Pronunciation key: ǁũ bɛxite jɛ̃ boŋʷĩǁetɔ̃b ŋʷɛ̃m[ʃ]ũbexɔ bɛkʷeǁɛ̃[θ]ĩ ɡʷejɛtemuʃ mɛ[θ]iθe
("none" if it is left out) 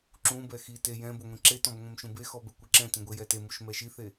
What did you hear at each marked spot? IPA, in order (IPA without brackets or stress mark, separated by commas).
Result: ʃ, t, ʃ